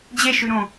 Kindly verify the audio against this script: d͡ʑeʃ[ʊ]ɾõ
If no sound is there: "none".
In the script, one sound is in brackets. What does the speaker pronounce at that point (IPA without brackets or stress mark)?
ʉ